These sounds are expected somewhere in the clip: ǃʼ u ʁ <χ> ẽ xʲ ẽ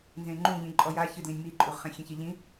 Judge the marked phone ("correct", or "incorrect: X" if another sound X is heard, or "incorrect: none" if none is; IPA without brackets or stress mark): correct